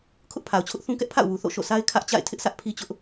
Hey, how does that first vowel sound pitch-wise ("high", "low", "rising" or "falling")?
high